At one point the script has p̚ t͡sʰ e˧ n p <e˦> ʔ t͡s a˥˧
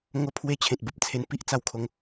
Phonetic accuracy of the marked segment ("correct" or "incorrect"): incorrect